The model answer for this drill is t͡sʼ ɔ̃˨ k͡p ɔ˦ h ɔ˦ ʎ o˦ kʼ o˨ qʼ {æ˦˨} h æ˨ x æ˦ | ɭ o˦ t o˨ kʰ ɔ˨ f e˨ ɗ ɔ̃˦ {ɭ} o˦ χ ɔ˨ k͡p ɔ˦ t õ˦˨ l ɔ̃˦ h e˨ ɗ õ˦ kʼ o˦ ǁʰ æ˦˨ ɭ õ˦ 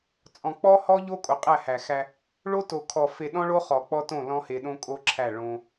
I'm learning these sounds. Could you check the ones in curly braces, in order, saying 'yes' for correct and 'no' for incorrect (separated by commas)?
yes, yes